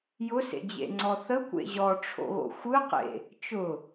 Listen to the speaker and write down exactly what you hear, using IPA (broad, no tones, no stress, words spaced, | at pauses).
jʊsḛd͡ʑḛŋ͡ǀɔ θəkʷḛ ʑɔʈ͡ʂʰo̰ɣo̰ xʷɯqḛ | t͡ʃʊ